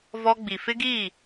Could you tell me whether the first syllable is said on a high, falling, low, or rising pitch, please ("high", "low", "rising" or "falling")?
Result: high